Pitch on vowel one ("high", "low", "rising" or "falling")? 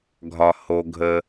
low